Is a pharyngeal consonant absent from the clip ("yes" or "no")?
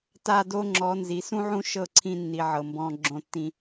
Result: no